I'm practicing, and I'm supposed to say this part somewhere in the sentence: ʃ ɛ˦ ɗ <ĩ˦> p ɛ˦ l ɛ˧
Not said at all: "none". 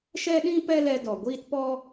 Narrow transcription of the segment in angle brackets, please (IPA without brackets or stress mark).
ĩ˦